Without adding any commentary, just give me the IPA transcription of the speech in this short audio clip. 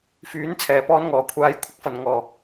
fyː˨˥nt͡sʰɛː˨˩ pɔː˧nŋɔː˨˩kʷʰaː˨j kʷʰɪ˨˥k̚fɐ˨˩n ŋɔː˨˩

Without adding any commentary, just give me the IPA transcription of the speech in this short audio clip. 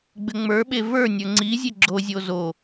ɡ͡bɘŋ͡mə˞ɓe və˞nʲə˞ ŋ͡ǀi zʲeɡ͡ǁozʲo zo

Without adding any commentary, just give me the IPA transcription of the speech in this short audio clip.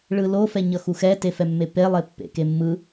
ɭɯlo fɛɲʌxuxɛ tefɛmːepe lˠepːḛkemːɯ

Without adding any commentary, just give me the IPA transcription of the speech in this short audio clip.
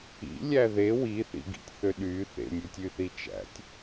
ḭlʲæ ðe wiθḭɡḭtʲθø ɗy θḛmʲʉtʲyθi t͡ʃæ̰tʲ

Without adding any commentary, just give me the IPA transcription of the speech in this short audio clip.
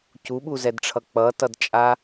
cuɓuzɛdʈ͡ʂʰʌ k͡pʌtʌdt͡ʃʼa

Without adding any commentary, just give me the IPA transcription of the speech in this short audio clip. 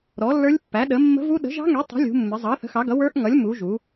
ɾɔ˨˥lːə˞˦˥lʲ pːæ˨˥ɗə˨˥ mːə̤˦˥vu˦˥ ɗə̤˨˥ʒɑ̤˦˥ŋɛ˨˥ tˤɛ̤˨˥ lʲṳ˨˥mːɪ˨˥ zˤɑ˨˥θə̤˨˥xɑ˨˥ɡʌ˨˥ wə˞˦˥ʔŋʌ˨˥lʲ mu˨˥ʒu˨˥

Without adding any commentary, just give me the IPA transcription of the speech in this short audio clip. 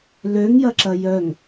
løŋjɐǁɐ jœŋ

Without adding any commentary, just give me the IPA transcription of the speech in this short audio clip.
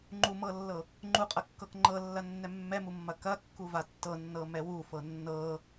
ŋ͡ǃumɤlːɤ | ŋ͡ǃuqʼɐkːɤk ŋ͡ǃɤlːɐnːɛ mːɛmumːɐ kɐkːuva tːɤnːɤmɛ wufɤ nːɤ

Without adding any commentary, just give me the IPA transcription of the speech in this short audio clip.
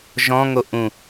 ʒɔ̃ŋo ʔũ

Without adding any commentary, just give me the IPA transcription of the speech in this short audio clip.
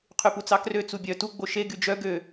qʰyput͡sɑkrø t͡subʲœ tu ɡ͡boʃe ɡyd͡ʒœ ɡø

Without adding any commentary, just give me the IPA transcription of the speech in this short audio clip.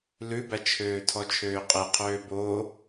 lʉbæt͡ʃʰøː tʰɔt͡ʃʰøːqʼeqʰøː bo

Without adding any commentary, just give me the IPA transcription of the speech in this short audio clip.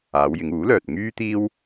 aː˨˧wjɪ˨˧ŋuː˨˥lœː˨t̚ ŋyː˥t̪iː˥w

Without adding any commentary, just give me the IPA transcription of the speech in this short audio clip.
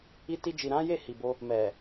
i˧ ti˧d͡ʒi˨ɾã˨˦ je˦˨hi˨bo˧ | mɛ˨

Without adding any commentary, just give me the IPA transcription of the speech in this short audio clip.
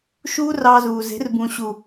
ʃuː˦rɑ˧zuː˨ze̤˨˦r bũ˨ɕu˨

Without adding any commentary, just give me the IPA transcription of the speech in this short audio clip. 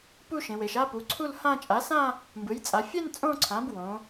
pu˥˧ʃẽ˩˧we˩˧ʃ a˥˧pu˩˥ǀʰu˥˧l hã˥˧ t͡ʃʼa˩˥sã˥˧ | mbɯ˩˥j t͡sʼa˩˧fʲɛ˥˧n t͡sʼõ˥˧ǀʰã˩˥b wõ˩˥

